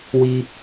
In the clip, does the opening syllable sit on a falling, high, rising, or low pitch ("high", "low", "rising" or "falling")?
high